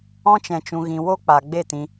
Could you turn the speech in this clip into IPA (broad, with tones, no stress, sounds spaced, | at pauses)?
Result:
ɔ̃˧ t͡ʃ ɛ̃˨ t͡ʃ ũ˨ ɣ ĩ˨ w o˧ k͡p a˨ ɡ͡b e˦˨ t ĩ˧